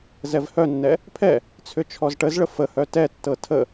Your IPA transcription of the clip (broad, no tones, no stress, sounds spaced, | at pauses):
z ɛ v h œ nː ɛ | pʰ ɛ | t͡sʰ ʏ t͡ʃʰ ɔ z ʈ ə z ɭ ə f ə h œ t ɛ tː ɤ tʰ ə